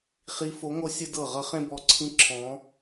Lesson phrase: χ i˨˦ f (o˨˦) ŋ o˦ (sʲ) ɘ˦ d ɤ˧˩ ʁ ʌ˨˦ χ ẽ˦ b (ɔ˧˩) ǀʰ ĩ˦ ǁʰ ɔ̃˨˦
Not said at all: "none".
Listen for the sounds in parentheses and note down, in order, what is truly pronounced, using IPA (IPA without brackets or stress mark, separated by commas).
o˨˦, sʲ, ɔ˧˩